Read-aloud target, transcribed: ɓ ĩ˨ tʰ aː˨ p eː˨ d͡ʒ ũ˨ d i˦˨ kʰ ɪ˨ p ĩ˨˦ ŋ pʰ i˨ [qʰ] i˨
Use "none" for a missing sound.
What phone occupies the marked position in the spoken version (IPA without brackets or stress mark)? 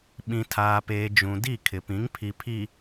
pʰ